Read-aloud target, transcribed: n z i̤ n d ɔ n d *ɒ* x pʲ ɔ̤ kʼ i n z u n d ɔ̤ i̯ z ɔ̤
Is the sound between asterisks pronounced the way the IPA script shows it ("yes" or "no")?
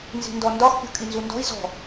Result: yes